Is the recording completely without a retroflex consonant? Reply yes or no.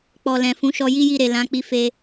yes